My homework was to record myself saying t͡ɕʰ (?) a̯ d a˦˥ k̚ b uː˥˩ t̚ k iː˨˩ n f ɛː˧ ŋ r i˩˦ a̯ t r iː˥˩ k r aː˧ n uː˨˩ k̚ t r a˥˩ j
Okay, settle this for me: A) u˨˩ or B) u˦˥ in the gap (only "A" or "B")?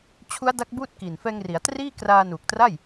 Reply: B